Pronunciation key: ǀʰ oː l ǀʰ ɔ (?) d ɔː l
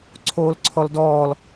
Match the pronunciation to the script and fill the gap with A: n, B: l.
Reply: B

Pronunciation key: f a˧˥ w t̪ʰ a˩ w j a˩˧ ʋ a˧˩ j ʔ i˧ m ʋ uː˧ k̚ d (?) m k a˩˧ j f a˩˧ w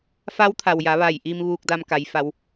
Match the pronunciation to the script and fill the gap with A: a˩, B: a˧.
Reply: B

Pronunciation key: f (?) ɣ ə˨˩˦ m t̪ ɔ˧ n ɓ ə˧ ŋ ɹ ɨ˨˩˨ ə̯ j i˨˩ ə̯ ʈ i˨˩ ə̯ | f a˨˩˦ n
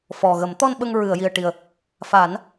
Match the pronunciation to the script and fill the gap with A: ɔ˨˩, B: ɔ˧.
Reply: A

